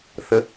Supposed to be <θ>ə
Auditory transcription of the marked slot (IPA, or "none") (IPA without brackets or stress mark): θ